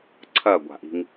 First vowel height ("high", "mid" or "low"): low